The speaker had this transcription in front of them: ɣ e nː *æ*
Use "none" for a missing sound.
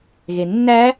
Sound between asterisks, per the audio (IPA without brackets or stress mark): æ